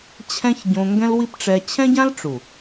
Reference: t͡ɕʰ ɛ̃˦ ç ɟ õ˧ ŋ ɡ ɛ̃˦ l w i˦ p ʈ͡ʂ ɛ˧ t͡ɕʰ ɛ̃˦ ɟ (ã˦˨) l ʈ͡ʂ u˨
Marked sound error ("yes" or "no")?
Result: yes